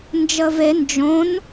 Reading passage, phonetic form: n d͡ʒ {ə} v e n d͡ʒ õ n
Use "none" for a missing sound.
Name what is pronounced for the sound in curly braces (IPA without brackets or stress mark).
ə